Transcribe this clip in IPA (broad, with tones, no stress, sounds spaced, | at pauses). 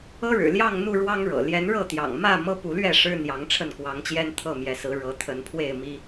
ɤ˦ ɻ ɻ̩˨˩ l j ɑ˥˨ ŋ n̪ u˥˨ ɻ w ɑ˦ ŋ ɻ ɤ̰˨˩ l j ɛ˨˦ n ɻ ɤ˥˨ t̪ j ɑ̰˨˩ ŋ m ä˥˨ m ɤ˦ p u˨˦ l ɥ ɛ˥˨ ʂ ɻ̩˦ n̪ j ɑ˨˦ ŋ ʈ͡ʂʰ ə˥˨ n k w ɑ˨˦ ŋ t͡ɕ j ɛ˦ n t̪ʰ ɤ˥˨ m j ɛ˨˦ s ɹ̩˨˦ ɻ ɤ˨˦ t̪ʰ ə˨˦ n pʰ w e˥˨ ɪ̯ m i˦